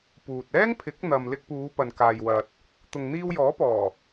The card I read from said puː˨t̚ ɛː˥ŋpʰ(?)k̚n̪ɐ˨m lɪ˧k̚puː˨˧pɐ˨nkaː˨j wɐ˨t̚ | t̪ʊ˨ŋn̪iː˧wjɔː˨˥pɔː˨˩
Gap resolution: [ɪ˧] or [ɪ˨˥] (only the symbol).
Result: ɪ˨˥